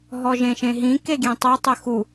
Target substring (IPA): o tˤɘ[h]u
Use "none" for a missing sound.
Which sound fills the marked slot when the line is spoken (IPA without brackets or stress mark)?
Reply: x